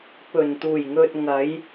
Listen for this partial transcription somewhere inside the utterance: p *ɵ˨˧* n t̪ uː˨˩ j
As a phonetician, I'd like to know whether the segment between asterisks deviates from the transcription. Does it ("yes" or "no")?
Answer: yes